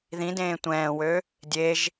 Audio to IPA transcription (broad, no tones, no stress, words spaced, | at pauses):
ðĩdẽː tʷɛ̃ːwø | dʲeʒ